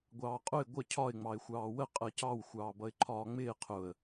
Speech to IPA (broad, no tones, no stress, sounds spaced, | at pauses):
ɡʷ ɑː qʼ ʊ ɪ̯ ɡʷ ə cʰ ɒ ɪ̯ ŋ͡m ɑ ɪ̯ xʷ ɑː w ə qʼ ɜ c ɑ w xʷ ɑː b ʌ ɪ̯ ǃʰ ɒː ŋ͡m ɪː qʰ ʊ ə̯